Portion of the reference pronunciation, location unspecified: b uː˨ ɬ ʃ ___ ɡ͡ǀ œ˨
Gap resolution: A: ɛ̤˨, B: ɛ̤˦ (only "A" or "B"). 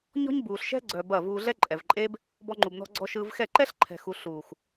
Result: B